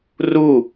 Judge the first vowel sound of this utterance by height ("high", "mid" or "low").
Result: high